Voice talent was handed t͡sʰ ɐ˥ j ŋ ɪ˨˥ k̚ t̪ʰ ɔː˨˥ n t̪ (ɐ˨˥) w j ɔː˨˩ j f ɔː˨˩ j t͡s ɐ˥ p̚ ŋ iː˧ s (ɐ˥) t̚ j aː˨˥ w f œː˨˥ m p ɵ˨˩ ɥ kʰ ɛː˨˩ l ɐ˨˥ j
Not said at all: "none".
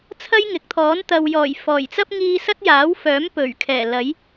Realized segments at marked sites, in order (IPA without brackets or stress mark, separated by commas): ɐ˨, ɐ˥